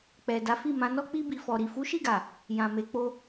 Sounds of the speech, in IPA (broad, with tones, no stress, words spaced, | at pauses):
k͡pɛ˨ da˨˦fi˦˨mã˨˦nɔ˦ k͡pi˧bi˨fɔ˨ɾi˨ fu˨˦ʃi˦˨ɡa˨ | jã˨ me˨ k͡po˧